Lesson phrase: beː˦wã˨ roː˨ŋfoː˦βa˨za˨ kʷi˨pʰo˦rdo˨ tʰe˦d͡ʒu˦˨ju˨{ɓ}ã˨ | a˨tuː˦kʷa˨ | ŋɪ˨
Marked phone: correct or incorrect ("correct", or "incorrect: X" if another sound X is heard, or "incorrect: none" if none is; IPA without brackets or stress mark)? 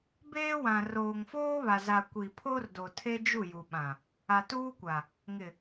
correct